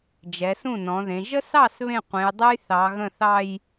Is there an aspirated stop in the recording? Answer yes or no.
no